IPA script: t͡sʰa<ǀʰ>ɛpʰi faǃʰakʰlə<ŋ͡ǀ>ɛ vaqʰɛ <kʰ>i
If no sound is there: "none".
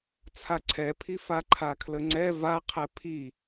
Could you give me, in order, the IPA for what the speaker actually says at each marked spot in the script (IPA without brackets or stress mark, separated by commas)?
ǀʰ, ŋ͡ǀ, pʰ